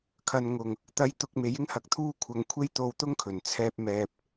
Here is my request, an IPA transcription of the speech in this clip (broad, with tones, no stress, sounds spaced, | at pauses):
kʰ ɐ˨ n ŋ ʊ˨˩ ŋ | t̪ ɐ˨˥ j t̪ ʊ˨ k̚ m e˨˥ j ɪ˥ ŋ h ɐ˨˥ k̚ t̪ʰ uː˥ kʷʰ ɐ˨˧ ŋ kʷʰ e˥ j t̪ o˧ w t̪ ʊ˥ ŋ kʰ ɵ˨˩ n t͡sʰ ɛː˧ p̚ m ɛː˨ p̚